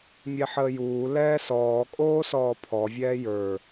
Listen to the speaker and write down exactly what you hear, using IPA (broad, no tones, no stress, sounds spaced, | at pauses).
mʲ ɛ ħ əː j uː l ɛː s ɔː kʼ oː s ɔː pʰ ɔ vʲ ɛː j ə˞